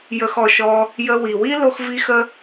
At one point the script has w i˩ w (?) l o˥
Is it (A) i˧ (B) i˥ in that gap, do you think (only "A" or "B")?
B